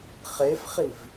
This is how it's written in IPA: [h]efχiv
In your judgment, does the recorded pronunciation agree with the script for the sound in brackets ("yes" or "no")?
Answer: no